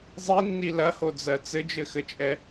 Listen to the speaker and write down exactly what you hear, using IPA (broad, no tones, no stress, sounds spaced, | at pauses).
zˤ i nː i l ɐ h o d͡z ɜ t͡s ɘ d͡ʒ ɘ x ɘ t͡ʃʼ ɛ